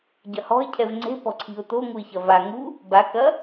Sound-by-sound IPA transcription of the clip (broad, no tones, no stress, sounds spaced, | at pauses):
ɟ ɐ h ɔ̤ ɪ̯ cʰ ɛ v ŋ͡ǀ e̤ p ɔ̤ ǀʰ i̤ ʊ̯ t̪ o ŋ u ɪ̯ ç ɐ v a ŋ u | b a k ɐ